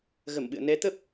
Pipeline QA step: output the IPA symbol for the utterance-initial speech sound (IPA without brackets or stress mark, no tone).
ɣ